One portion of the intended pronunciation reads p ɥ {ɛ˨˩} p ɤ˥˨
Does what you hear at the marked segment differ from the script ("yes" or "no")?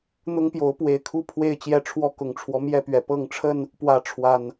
no